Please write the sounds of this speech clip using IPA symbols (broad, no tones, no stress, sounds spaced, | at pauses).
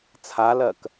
t͡sʰ a l ɜ k